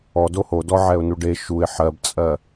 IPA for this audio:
ɔ d o h o d ɔ ʕ ɛ ʊ̯ n u ɖ e ʃ u ɪ̯ ħ ɜ b t͡sʼ ɜ

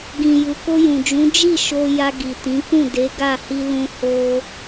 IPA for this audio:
ɡ ĩ˨ j u˨ k o˧ j ũ˨ d͡ʒ ũ˨˦ d͡ʒ i˦˨ ʃ o˧ j a˧ ɡ i˨ t ĩ˨˦ k ũ˦˨ d e˨˦ ɡ a˦˨ h i˧ l ũ˧ h o˧

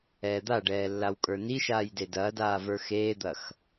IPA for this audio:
ɛː d̪ a ɖ ɛː lː a w kʼ ə˞ n i ʃ aː j d e d ɐː d aː v ə˞ x eː d̪ ɐ x

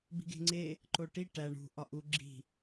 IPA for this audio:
b i̤ ɡ e̤ ŋ͡ǀ e | ǃ o ʈ i ʈ æ ɳ ṳ ʔ ɒ ʔ u ɡ͡ǁ i̤

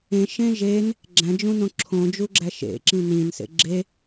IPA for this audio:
ẽ ʃ ẽ ʒ e n | ɡ͡ǁ æ̃ d͡ʒ ũ n õ ǁʰ õ d͡ʒ u ɡ͡ǁ æ ʃ ḛ ǁ ĩ n ĩ n s ḛ ɡ͡ǁ e

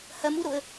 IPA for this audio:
h ɐ m u ɾ o ə̯

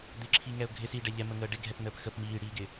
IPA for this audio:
d̪ ɪ ǁʰ i ŋ ɛ ʊ̯ ɡʱ ɪ s iː ɖ ɛ ʎ ɛ m ə ŋ əː ɖ ɪ ɡʱ ɛ p n əː p x ə p m iː ɽ iː ɡ ɪ

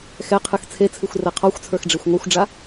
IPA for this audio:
x ɛ qʰ ɨ x t͡sʰ e t͡sʰ ɨ xʷ r ɛ qʰ ɔ xʷ t͡sʰ ə˞ x ɖ͡ʐ e xʷ ŋʷ ə˞ xʷ ɖ͡ʐ a

